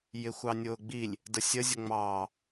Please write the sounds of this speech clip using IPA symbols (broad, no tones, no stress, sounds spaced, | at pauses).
j ɪ xʷ ɑ nʲ ʊː ɡ͡b i lʲ | d ə sʲ ə zʲ ʊ ŋ͡m ɑː